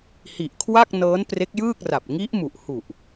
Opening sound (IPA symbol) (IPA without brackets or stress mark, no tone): h